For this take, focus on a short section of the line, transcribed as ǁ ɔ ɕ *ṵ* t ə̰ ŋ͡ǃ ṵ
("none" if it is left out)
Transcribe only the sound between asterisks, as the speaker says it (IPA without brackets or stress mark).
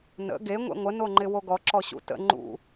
ṵ